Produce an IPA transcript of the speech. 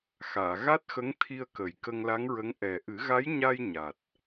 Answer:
x aː˨˩˨ ɣ a˦˥ t̚ x ə˧˥ ŋ t̪ʰ i˧ ə̯ k ə˨˩ j k ə˧ ŋ l a˧˥ ŋ ɹ ə˧˥ ŋ ʔ ɛ˨˩ ʔ ɨ˨˩˦ ɣ a˧˥ j ɲ a˧ j ɲ a˨˩ t̚

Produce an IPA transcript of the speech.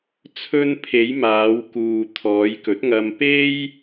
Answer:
t͡sʰ ɵ˧ n pʰ e˨˧ j m aː˨˧ w k uː˨ t̪ʰ ɔː˨˧ j k ɵ˨˥ t̚ ŋ ɐ˧ m p e˥ j

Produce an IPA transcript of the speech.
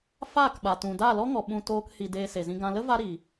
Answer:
f aː˦˨ k ɓ a˨ t ũ˨ d aː˦˨ l ɔ˦ ŋ ɔ˨ ɓ ũ˧ t oː˧ k h i˨ d eː˧ s e˨ z ĩ˧ ɡ ã˧ l ə˦ v a˦ ɾ i˨

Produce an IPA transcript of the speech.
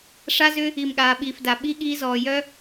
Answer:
ʂ a˦ z ʏ˦ | i˨ m ɠ aː˨ ɓ iː˨ f d a˨ ɓ i˧ ɠ iː˧ z ɔː˨ j œ˦

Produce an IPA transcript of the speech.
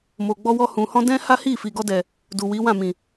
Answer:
m o˨ ɡ͡b ɔ˧ w ɔ˧ h ũ˨ h ɔ̃˧ d ɛ̃˦ h a˦ h i˦˨ f i˨ ɡ ɔ˧ d ɛ˨ | d u˨ w i˨˦ w ã˦˨ m ĩ˨

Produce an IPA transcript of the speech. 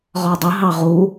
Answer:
ʁ ɒ dˤ ə ɦ ɑ ʁ u

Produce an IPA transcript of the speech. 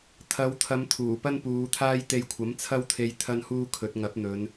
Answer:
t̪ʰ ɐ˨˧ w t̪ʰ ɐ˨˧ m t̪ʰ uː˨˩ p ɐ˥ n p uː˨˧ t̪ʰ aː˥ j t̪ e˧ j kʷʰ ɐ˨˥ m t͡sʰ ɐ˥ w t̪ʰ e˧ j t̪ʰ ɐ˥ n h uː˥ kʰ ɵ˨˥ t̚ ŋ ɐ˨˥ p̚ n̪ ɵ˨˧ n

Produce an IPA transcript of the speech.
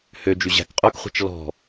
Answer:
h ø d͡ʒ y ʑ æ̤ k qʼ ɵ k χʷ ɛ̤ t͡ʃ l ɔ̤

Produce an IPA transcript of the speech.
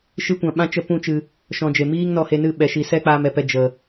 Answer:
ʃ ɨ˦ kʷ ã˧ ɓ ã˦ t͡ʃ ə˦ p ũ˦ t͡ʃ ɨ˧ | ʃ ɔ̃˧ d͡ʒ e˨ m iː˦ ŋ n ɔ˧ h e˧ n ɨ˦˨ ɓ ɛ˨˦ ʃ i˧ s ɛ˦ k͡p aː˧ m ɛ˧ p ɛ˧ d͡ʒ ə˨

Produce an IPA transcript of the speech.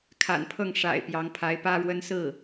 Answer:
kʰ a̰˨˩ n pʰ ɤ˥˩ ŋ ʂ a̰˨˩ ɪ̯ p j ɑ˧˥ ŋ pʰ a˧˥ ɪ̯ p ä˥ ɻ w ə˥ n s ɹ̩˥˩

